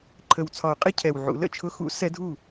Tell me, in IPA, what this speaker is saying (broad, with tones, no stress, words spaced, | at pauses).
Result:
ǃʰə˨˩wt͡sʰɒ˨˩˦ʊ̯ qʼɪ˧˥˧cʰɛ˨˩wʕṵ˨˩˦ lə̰˥˩t͡ʃʰʊ˧˥˧ xṵ˨˩˦ sɛ˧˥dʱu˥˩